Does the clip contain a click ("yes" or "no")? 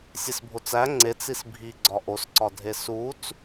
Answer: yes